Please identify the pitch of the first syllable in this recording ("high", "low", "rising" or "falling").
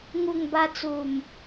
low